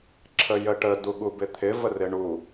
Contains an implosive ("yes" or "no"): yes